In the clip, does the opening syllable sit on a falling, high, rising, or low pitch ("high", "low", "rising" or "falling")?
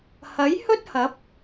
rising